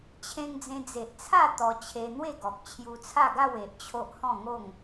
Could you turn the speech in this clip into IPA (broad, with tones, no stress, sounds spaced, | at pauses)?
t͡ɕʰ ẽ˧ ŋ d͡z ẽ˧ d͡z e˨ ʔ t͡sʰ a˥˧ t̪ ɔ˧ t͡ɕʰ e˧ n̪ w e˥˧ ɡ ɔ˨ k̚ t͡ɕʰ j u˧ t͡sʰ a˥˧ ɡ a˥˧ w e˨ ʔ t͡ɕʰ o˦ ʔ h ɔ̃˥˧ ŋ o˥˧ ŋ